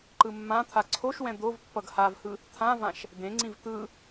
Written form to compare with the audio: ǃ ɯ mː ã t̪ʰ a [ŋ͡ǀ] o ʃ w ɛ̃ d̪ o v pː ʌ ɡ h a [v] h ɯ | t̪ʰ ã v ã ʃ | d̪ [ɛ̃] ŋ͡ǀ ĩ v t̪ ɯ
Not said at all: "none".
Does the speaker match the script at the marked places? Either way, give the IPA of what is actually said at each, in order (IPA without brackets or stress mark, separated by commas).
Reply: ǀʰ, v, ẽ